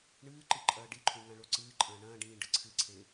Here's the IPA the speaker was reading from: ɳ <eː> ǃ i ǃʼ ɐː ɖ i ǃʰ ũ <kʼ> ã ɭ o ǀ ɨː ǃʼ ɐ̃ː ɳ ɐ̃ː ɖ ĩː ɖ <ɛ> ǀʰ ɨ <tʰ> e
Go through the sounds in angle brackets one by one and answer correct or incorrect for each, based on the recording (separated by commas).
incorrect, incorrect, incorrect, incorrect